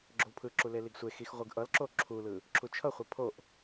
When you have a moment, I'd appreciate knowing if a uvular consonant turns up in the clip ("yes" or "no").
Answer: yes